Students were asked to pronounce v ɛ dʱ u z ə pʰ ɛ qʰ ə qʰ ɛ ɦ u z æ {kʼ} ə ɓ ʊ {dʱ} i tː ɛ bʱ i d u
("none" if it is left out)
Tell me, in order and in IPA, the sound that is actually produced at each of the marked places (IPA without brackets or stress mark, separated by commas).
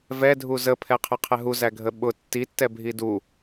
ɡʱ, tː